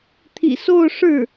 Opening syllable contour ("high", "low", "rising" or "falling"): low